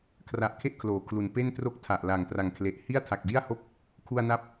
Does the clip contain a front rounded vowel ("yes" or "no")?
no